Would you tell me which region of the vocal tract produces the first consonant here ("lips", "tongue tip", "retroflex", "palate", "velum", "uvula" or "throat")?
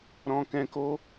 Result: tongue tip